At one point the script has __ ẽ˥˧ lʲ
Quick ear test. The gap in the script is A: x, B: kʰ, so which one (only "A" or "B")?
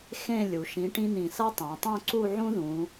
A